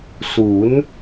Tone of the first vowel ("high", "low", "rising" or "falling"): rising